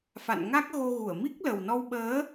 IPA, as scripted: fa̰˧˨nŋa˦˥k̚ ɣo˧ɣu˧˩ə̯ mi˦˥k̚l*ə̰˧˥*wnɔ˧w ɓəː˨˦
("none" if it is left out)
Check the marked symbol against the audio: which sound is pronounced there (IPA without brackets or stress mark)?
ə˨˩